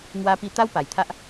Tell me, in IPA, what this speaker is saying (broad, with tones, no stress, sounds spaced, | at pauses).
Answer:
ŋ w a˧ p i˧ t̪ a˦ w p a˨˩ j t̪ʰ a˦ ʔ